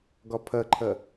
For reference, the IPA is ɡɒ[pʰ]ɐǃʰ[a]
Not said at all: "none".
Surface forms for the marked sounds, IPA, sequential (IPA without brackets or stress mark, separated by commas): pʰ, ɐ